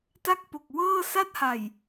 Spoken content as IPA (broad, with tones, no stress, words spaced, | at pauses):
ta˥˩k̚po˨˩k̚ wɤː˥˩ sa˥˩t̚ha˨˩j